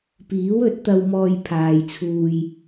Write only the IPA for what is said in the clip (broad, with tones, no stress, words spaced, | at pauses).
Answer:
piː˨˥wɵ˨˥t̚ t̪ɐ˧wmɔː˧jpʰaː˨jt͡sʰuː˧j